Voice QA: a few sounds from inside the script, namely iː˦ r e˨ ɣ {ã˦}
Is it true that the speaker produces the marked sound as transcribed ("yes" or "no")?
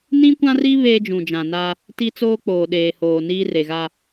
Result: no